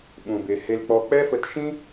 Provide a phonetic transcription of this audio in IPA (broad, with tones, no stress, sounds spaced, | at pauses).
ɓ ũ˨ b e˨ h e˧ l k͡p ɔ˧ k͡p ɛ˦ f ə˧ t ʃ ĩ˦